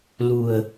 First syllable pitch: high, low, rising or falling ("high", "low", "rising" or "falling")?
low